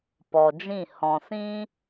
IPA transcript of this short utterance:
p ɔ˨ d͡ʒ ĩ˦˨ h ɔ̃˨ s ĩ˦

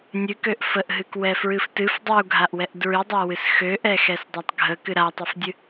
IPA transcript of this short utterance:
nʲ ɨ k ø ʔ f ə ʔ ɦ ɨ k w ɛ f ɹ ɨ f t ɨ f dˤ u ɡʱ a ʔ w ɛ ʔ d ɹ ɨ dˤ a w ɨ s x ø ʔ ɛ x ɛ s dˤ a tˤ ɡʱ ə k ɨ ɾ a tˤ ɨ f dʲ ɨ

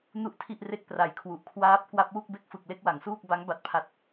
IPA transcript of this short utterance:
n u˥˩ ʔ tʰ i˥˩ ʔ r e˥˩ k̚ p r a˨˩ j kʰ w u˨˩ ʔ kʰ w aː˦˥ p̚ k w a˦˥ p̚ w u˥˩ k̚ b e˥˩ k̚ f ɯ˨˩ k̚ l e˥˩ k̚ w a˩˦ ŋ s uː˥˩ k̚ b a˦˥ ŋ b a˦˥ t̚ pʰ a˦˥ t̚

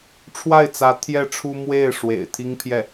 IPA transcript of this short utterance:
ʈ͡ʂʰ w a˥˩ ɪ̯ t͡s ä˧˥ t̪ʰ j ɛ˥˩ ʈ͡ʂʰ u˥ m w e˥˩ ɪ̯ ʂ w ḛ˨˩ ɪ̯ t̪ʰ i˥ ŋ pʰ j ɛ˥˩

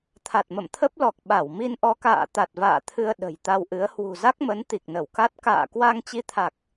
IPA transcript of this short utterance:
t̪ʰ a˨˩ t̚ m ə̰˧˨ m t̪ʰ ə˦˥ p̚ l ɔ˨˩ k̚ ɓ a˧˩ w m i˧ n ʔ ɔ˧ k a̰ː˧˨ t̪ a˨˩ t̚ v a̰ː˧˨ t̪ʰ ɨ˧ ə̯ ɗ ə̤˨˩ j t̪ a˧ w ʔ ɨ˨˦ ə̯ h w ṳ˨˩ z a˦˥ k̚ m ə˨˦ n t̪ i˨˩ k̚ n ə˧˩ w k a˦˥ t̚ k a̰ː˧˨ k w a˧ ŋ t͡ɕ i˧ t̪ʰ a˨˩ k̚

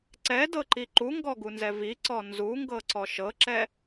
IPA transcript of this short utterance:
ǀ ɛ d ɤ ǃ i ǃ u ŋ ɡ ɔ ɡ u n z ɛ v i ǀ ɔ n z u ŋ ɡ ɤ ǀ ɔ ʃ ɤ ǁ ɛ

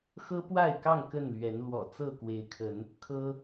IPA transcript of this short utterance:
x ɤ˦ p w a˥˨ ɪ̯ k ɑ˥˨ ŋ k ə˥˨ n l ɥ ɛ˨˦ n l w ɔ̰˨˩ t͡s ɤ˥˨ k w e˨˦ ɪ̯ kʰ ə˨˦ n | kʰ ɤ˦

